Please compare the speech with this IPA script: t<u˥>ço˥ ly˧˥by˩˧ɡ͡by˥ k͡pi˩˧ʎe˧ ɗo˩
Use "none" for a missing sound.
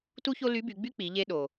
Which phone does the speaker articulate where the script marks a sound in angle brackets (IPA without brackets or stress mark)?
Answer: u˥